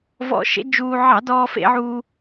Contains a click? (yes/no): no